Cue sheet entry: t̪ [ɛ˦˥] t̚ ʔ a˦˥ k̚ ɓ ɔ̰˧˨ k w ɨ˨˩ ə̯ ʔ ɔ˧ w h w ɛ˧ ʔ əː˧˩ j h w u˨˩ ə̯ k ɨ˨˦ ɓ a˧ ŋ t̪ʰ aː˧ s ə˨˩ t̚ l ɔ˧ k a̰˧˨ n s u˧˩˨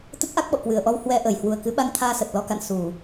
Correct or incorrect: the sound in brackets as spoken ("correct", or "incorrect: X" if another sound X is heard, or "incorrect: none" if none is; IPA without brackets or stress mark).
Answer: incorrect: ə˦˥